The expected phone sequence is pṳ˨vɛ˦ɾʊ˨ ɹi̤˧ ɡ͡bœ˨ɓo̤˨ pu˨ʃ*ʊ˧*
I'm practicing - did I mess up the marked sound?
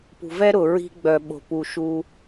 yes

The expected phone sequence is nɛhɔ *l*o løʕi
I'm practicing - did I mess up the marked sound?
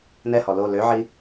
no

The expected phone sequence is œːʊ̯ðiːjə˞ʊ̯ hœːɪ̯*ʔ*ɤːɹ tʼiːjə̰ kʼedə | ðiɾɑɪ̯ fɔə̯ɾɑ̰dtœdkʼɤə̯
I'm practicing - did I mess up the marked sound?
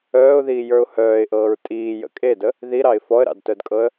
no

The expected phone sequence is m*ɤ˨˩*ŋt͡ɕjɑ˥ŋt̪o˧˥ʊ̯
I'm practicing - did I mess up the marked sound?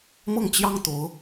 yes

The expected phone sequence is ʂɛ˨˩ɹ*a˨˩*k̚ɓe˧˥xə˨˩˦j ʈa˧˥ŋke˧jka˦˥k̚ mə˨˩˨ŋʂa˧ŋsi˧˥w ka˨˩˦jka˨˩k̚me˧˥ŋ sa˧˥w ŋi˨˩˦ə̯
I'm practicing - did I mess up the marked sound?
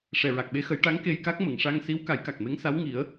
no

